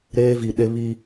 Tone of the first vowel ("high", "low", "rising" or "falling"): high